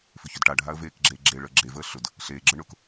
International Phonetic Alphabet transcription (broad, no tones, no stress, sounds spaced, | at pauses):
f ʏ ç ʏ d ʈ a ɖʱ a ə̯ v eː k ɡ͡ǁ eː ɡ͡ǁ e ɭ əː ɡ͡ǁ e v əː ɬ ʊ d | ɬ eː ɡ͡ǁ ə ɳ ʊ k